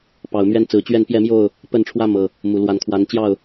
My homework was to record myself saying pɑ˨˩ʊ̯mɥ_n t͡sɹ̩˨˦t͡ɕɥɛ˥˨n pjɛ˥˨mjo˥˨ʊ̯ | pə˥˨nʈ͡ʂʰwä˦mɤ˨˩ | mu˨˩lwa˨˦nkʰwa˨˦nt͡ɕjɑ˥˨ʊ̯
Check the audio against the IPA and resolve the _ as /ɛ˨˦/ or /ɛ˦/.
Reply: ɛ˦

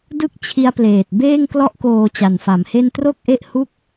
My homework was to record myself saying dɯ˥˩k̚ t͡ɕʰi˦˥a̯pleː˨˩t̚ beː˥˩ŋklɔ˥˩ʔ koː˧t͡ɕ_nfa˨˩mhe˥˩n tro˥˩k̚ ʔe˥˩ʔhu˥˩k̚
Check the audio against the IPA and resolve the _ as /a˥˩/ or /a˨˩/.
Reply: a˨˩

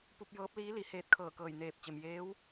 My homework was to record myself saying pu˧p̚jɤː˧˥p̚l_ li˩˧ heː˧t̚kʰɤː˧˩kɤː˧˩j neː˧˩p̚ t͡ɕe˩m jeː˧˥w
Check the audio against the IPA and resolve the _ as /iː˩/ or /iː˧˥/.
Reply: iː˧˥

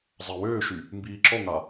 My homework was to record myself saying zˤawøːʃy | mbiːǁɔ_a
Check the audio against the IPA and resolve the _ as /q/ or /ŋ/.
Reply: ŋ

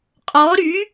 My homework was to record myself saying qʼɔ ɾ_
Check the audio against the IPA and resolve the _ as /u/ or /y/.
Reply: y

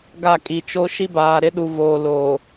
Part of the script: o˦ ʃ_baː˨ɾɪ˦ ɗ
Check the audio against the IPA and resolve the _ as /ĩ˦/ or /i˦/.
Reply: i˦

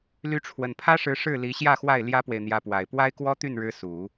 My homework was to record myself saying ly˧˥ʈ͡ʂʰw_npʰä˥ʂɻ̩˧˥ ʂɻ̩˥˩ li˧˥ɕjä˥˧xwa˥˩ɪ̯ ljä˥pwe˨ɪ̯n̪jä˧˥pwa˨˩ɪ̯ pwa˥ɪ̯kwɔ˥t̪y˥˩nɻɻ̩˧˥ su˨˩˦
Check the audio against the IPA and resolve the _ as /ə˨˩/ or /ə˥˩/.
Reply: ə˨˩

